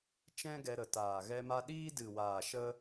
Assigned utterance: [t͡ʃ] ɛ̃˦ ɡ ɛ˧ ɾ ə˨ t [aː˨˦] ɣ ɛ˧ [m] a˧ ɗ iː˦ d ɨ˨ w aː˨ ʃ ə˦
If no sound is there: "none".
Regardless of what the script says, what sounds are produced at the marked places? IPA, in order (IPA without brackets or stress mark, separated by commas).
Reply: t͡ʃ, aː˨, m